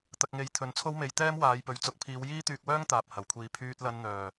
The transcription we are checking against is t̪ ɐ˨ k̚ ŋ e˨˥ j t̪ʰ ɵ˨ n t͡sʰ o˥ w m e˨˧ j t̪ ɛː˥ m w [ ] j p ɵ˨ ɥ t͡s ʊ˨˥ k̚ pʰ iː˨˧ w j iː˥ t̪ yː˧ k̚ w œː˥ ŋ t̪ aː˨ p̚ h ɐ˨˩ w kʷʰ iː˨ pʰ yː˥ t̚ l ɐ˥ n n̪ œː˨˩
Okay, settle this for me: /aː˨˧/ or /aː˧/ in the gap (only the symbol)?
aː˨˧